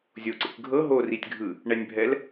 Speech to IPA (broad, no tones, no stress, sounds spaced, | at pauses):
zʲ o ǀ ḛ kʷ ɡʱ ɤ ɦ o r i tʲ ɡʱ ɯ | ɳ ɛ nʲ bʱ ɛ l